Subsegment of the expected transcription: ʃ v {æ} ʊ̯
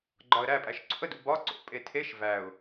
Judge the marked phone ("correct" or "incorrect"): correct